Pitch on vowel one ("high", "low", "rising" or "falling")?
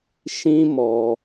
high